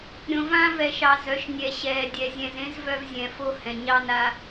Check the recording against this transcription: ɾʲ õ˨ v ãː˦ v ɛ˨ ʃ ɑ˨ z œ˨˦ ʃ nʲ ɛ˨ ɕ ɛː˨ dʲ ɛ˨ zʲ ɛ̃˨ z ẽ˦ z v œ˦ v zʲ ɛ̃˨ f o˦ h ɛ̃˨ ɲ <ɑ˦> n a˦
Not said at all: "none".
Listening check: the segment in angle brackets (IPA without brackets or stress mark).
ɑ˦